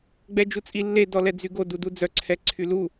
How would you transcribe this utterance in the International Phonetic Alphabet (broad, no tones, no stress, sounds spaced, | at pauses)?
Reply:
ɡ͡b ɛ d͡ʒ u t͡sʼ i lː e d ɔ l ɛ d͡z y ɡ o d u d u d͡z œ ǀʰ ɛ ǀʰ y l u